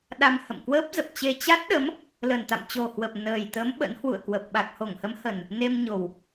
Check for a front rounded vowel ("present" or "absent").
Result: absent